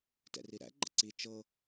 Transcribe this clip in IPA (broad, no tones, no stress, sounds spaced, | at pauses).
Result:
t ɛ̰ r i ɾ æ̰ ɡ͡ǃ ə̰ ǀ i t͡ʃ ɤ